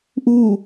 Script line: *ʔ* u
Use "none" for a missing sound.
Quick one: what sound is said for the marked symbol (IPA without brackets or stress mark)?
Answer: ʔ